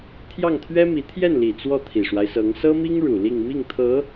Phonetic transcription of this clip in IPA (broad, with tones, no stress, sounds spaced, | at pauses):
t̪ʰ j ɑ˥˩ ŋ t̪ʰ ɥ ɛ˥ m i˧˥ t̪ʰ j ɛ˥˩ n l i˨˩ t͡s w ɔ˥˩ t̪ʰ i˨˩ ʂ w a˦ ɪ̯ s ɤ˧˥ ŋ s ɤ˥ m i˥ ŋ ɻ u˨˩ l i˥˧ ŋ m i˥˩ ŋ t̪ʰ ɤ˧˥